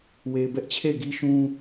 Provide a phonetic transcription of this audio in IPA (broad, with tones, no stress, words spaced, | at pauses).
we˨ɪ̯bɛ˦ʔt͡ɕʰe˦˨ɪ̯ ɡi˦ʃũ˦